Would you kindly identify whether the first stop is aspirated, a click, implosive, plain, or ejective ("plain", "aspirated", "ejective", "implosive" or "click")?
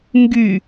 plain